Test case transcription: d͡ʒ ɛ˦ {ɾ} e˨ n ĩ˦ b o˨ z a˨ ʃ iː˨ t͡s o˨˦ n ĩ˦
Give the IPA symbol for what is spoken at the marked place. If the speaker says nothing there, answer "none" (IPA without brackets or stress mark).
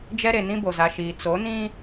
ɾ